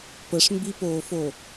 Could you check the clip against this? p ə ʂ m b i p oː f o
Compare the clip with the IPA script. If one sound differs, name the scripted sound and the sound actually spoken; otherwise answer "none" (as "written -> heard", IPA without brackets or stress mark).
none